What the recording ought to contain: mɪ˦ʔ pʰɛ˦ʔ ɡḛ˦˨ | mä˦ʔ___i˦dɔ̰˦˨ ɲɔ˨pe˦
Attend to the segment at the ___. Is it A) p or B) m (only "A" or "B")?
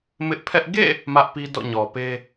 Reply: A